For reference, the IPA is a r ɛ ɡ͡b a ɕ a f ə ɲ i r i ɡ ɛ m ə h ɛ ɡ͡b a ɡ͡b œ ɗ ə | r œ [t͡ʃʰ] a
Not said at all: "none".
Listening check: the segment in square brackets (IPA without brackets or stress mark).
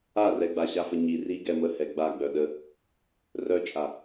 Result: t͡ʃʼ